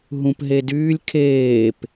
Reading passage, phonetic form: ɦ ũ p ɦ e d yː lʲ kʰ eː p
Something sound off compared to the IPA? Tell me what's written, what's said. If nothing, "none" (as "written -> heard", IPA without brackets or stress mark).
none